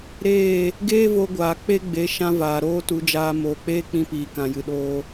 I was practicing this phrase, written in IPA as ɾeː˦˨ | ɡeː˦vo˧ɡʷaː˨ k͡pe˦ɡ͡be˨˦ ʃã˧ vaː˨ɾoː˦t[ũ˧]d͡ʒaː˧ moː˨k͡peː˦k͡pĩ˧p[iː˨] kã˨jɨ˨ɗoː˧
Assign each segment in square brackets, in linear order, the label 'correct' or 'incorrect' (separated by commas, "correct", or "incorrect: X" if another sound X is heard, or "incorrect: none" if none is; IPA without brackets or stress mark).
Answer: incorrect: u˧, correct